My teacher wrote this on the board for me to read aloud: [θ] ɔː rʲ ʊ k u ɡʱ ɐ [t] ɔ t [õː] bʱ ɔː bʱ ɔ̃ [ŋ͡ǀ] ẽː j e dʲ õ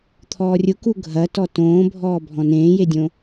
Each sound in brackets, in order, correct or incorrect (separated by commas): incorrect, correct, correct, incorrect